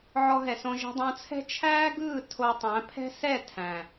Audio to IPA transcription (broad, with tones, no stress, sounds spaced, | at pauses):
ʕ ɔ˧ ɦ ɛ˨ s õ˧ ʒ ɛ̤˧ dˤ õ˧ t͡sʰ ɛ̤˦ t͡ʃʰ æː˦ ɡ ɯː˦˨ tʰ o˧ tˤ æ̃˨˦ pʰ ɛ̤˦ s ɛ˦˨ tʰ æ̃ː˨